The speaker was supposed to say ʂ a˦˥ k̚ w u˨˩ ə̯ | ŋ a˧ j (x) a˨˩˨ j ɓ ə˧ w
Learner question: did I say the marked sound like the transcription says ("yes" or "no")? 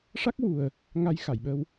yes